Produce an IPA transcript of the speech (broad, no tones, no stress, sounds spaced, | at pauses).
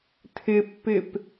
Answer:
tʰ ɪ pː ɪ p